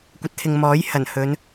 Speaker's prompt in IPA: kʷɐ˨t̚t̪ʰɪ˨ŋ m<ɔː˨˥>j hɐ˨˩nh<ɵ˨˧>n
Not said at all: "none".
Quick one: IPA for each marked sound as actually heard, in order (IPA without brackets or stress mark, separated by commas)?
ɔː˨˥, ɵ˨˧